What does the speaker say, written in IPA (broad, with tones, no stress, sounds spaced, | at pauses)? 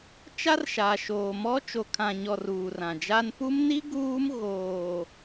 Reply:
t͡ʃ a˦ r ʃ a˨ ʃ oː˨ m ɔ˦ t͡ʃ o˨ kʰ ã˨ ɲ ɔ˨ r uː˨ r ã˨ d͡ʒ a˦ n p u˦ m n i˦ ɡ uː˦ m ɣ oː˨